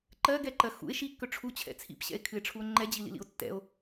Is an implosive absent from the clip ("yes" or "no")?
yes